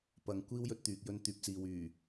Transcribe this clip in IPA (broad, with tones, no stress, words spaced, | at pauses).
pɐ˨˥ŋkʷiː˥wjɵ˨˥t̚t̪yː˨k̚ jɵ˧nt̪yː˨p̚t͡siː˨wyː˨˩